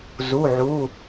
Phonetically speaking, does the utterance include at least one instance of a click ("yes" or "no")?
no